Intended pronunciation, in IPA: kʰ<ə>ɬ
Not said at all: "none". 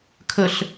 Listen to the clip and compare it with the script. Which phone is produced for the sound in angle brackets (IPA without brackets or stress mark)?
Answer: ə